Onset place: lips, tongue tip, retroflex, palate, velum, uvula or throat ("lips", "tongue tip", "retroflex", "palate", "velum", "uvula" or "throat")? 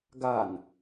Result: velum